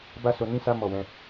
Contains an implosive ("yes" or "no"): no